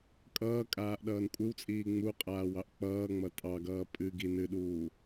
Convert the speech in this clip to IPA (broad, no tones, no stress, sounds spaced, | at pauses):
kʼ ʌː kʼ aː ʔ ɗ ʌː n kʷʼ ɨ w t͡sʼ iː ŋ͡m u qʼ aː w ɑ ʔ k͡p ʌː ŋ͡m ʌ tʼ ɑ ɡ ʌː pʼ ɨ ɡ i n ɨ ɗ uː